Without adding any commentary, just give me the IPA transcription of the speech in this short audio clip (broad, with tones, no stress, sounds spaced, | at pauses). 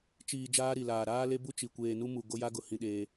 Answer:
t͡ʃ iː˨ d͡ʒ aː˦ ɾ i˨ l aː˨ ɾ aː˦ l e˦ b u˦ t͡ʃ i˨ kʷ eː˨ n u˦ m u˨ ɡ o˦ j a˦ ɡ ʊ˨ h ĩ˦ ɗ eː˦